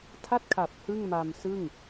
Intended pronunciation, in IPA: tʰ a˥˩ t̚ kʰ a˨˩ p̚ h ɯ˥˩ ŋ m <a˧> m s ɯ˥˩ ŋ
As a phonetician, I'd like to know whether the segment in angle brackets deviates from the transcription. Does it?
no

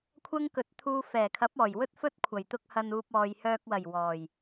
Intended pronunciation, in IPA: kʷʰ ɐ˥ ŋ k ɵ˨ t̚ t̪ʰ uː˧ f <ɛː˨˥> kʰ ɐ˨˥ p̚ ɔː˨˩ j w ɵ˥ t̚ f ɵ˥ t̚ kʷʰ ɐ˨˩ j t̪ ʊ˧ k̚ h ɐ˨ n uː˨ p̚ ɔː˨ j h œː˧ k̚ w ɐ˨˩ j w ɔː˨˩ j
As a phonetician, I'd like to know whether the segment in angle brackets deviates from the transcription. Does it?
yes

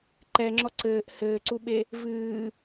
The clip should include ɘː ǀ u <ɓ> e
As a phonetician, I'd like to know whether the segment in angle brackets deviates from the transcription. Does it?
no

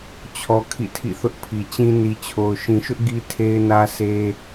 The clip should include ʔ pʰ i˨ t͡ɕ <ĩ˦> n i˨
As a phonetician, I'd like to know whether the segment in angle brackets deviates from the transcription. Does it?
no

